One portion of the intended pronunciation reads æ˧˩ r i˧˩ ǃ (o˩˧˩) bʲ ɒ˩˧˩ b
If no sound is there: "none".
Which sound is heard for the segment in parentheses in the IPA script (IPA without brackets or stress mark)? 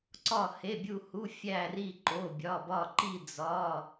o˩˧˩